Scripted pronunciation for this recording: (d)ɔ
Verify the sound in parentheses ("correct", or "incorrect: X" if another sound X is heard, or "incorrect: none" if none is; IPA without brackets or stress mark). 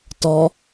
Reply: incorrect: t